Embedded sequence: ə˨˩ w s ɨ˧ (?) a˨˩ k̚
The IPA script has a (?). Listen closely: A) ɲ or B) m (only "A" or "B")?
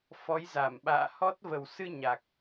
A